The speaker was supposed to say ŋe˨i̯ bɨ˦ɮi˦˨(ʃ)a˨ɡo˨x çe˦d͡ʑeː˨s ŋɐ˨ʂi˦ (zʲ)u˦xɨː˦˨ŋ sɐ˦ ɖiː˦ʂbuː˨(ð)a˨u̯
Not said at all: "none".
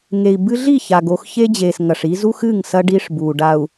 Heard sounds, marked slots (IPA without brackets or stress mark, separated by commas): ç, z, ɖ